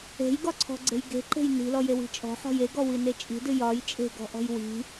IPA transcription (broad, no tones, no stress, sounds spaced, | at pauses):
e̤ j ɡ ɒ ǀʰ ɔ̤ ɡ͡ǀ e̤ j ɡ e̤ ǃ e̤ j n i̤ l ɔ j e w i̤ t͡ʃʼ ɔ̤ ħ ɔ̤ j e ɡ ɔ w i n e t͡ʃʼ i̤ d ɨ j ɒ j t͡ʃʼ e̤ ɡ ɔ̤ ʔ ɔ̤ j w i̤